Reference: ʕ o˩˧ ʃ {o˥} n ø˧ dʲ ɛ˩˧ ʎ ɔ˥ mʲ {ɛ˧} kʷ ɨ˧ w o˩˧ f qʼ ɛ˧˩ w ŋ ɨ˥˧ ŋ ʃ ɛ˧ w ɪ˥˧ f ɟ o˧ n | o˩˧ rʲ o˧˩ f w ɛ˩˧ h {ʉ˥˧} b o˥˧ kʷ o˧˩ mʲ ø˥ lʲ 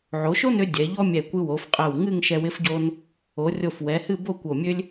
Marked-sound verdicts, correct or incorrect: correct, incorrect, incorrect

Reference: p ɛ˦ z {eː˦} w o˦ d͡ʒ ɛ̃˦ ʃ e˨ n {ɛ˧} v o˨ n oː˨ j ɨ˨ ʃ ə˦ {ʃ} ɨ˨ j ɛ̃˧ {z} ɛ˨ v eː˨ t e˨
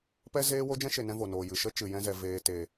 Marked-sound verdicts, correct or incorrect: correct, incorrect, incorrect, correct

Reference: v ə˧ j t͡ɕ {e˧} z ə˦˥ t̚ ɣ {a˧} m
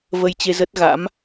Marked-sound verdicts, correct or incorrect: correct, incorrect

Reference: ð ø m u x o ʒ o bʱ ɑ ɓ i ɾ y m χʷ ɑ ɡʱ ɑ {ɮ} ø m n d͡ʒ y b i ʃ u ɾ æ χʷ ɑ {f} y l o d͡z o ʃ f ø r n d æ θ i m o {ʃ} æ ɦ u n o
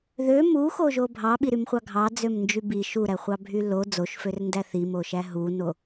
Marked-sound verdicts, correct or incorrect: incorrect, incorrect, correct

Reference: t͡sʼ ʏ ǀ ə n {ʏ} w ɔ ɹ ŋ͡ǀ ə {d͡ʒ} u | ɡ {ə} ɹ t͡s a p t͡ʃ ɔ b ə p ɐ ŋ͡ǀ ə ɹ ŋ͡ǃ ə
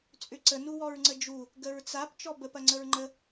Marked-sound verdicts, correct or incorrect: incorrect, correct, correct

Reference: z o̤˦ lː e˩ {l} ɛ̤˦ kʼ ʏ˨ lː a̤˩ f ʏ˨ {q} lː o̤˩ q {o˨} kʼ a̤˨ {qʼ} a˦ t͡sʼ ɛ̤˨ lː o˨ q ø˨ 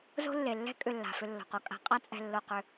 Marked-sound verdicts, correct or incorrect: incorrect, incorrect, correct, correct

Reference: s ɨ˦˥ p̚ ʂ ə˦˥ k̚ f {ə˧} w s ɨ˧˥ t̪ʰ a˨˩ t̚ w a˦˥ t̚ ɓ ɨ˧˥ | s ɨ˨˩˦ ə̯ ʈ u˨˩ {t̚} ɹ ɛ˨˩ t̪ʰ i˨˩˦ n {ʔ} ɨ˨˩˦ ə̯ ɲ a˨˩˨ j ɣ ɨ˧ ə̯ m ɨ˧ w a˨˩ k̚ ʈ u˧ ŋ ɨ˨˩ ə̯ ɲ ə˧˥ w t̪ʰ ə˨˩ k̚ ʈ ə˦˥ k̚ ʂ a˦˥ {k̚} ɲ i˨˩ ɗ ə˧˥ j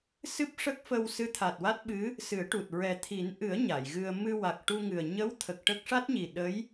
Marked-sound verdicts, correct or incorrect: correct, correct, correct, incorrect

